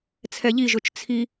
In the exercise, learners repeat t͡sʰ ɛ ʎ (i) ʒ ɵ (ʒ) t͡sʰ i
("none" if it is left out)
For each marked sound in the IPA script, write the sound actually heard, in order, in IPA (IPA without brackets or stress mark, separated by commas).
i, t͡ʃ